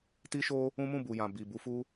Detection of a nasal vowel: present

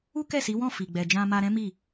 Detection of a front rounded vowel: absent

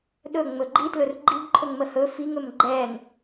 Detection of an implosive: present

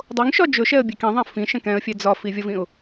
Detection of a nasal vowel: present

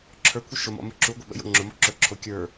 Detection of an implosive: present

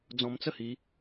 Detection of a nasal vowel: present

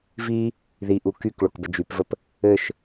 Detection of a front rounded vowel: present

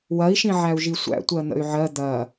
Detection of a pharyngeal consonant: present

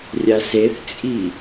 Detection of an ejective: present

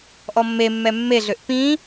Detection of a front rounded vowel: present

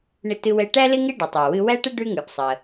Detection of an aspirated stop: absent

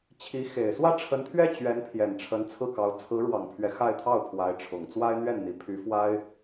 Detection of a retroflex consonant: present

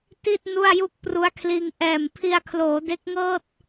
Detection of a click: absent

